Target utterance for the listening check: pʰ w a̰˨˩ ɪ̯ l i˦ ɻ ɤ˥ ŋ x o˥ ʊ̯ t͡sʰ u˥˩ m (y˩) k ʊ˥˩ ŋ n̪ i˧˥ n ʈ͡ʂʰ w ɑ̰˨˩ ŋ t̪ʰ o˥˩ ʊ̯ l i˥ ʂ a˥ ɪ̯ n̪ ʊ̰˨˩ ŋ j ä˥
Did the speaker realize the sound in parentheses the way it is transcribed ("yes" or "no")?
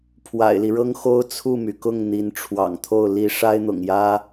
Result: yes